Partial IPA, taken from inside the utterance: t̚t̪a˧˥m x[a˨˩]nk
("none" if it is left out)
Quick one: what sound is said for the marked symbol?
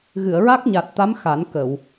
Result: a˨˩˦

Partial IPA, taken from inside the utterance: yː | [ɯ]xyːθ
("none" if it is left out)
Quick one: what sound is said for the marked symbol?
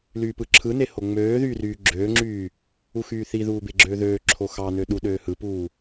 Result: u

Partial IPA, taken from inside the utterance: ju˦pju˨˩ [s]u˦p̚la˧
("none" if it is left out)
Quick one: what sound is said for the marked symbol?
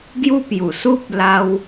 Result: s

